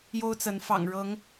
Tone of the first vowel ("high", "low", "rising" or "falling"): high